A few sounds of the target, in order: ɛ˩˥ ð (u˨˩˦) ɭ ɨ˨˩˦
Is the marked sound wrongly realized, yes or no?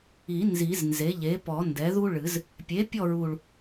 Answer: yes